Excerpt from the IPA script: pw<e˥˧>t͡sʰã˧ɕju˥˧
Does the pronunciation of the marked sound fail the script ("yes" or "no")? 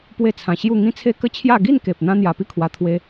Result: no